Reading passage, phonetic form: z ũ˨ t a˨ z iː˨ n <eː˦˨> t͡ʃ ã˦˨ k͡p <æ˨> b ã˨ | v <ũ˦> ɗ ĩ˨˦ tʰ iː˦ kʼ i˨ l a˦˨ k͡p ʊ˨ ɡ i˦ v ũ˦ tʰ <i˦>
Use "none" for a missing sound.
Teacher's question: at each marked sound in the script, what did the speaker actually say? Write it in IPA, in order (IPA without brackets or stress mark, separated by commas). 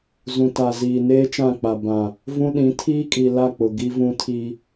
eː˦, a˨, ũ˦, i˦